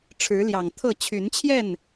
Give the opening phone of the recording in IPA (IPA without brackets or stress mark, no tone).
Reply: ʈ͡ʂʰ